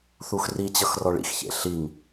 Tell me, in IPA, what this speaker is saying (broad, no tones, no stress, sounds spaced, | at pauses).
θ u x r i t͡ɕ ʌ x r ɔ ɭ ḭ x ç ḛ ɬ i ŋ